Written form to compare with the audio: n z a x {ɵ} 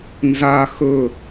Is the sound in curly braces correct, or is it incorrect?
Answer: correct